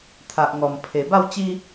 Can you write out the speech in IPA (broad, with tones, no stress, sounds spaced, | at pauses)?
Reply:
t̪ʰ a˨ ʔ ŋ ɔ˨˩ m pʰ e˨˩ b a˥˧ w t͡ɕ i˦